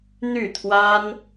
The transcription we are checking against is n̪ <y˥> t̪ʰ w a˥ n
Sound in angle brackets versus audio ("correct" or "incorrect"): incorrect